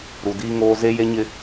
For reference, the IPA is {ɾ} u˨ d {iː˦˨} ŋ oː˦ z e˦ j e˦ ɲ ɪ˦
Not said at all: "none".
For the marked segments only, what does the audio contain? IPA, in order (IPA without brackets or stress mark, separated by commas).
ɾ, iː˦